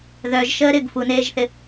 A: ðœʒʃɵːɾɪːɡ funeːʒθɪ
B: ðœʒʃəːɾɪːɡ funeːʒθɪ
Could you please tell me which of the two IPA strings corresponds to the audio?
B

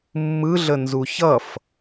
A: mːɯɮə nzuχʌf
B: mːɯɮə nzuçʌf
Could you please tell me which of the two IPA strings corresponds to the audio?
B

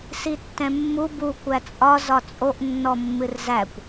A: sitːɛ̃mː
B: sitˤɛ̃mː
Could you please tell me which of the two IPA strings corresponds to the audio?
A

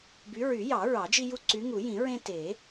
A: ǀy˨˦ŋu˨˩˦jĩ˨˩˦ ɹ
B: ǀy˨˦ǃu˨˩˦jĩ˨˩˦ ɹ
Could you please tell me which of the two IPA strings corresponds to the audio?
A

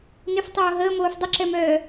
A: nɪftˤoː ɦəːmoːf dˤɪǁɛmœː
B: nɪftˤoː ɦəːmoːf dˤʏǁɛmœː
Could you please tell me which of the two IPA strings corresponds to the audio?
B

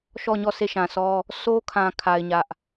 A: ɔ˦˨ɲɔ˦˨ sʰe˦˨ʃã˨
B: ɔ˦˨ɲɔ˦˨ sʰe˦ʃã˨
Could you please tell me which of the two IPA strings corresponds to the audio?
A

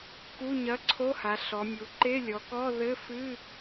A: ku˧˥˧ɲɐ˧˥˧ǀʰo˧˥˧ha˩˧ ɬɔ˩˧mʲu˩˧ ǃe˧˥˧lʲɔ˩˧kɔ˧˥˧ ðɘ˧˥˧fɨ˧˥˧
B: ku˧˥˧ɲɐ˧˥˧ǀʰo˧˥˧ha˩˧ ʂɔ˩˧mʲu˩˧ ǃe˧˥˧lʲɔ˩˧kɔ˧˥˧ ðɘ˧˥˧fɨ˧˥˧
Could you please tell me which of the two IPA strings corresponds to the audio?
A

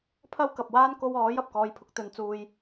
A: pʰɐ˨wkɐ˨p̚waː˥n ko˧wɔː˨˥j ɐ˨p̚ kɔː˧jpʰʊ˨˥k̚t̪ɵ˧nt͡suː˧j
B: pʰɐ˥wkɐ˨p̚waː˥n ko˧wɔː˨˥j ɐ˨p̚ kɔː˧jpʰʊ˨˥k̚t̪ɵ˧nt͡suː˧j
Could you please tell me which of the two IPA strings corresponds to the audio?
B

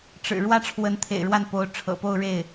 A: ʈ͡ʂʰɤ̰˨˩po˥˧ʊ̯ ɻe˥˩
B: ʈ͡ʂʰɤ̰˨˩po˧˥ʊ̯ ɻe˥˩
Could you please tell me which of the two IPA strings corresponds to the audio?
A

